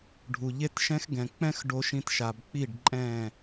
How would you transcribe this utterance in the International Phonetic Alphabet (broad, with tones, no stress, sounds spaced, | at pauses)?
ɖʱ u˨ ʎ e˦ t ʃ ɛ̃˦ x ɡ ɛ̃˨ k͡p ɛ̃˦ x ɖ o˨ ʃ ĩ˨ t ʃ a˨ b k͡p i˦˨ ɖ ǃʼ ɛ̃˦˨